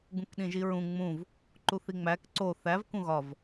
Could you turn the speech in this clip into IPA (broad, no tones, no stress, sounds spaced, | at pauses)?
ɡ ũ k ɗ ĩ ʒ i ɹ ũ ŋ͡m ũ v | ǃ u θ i ŋ͡m æ k ǀ o θ æ v k ũ ɣ ɒ v